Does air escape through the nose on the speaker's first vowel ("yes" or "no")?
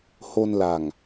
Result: no